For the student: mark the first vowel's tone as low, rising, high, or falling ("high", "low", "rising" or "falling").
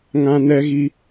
high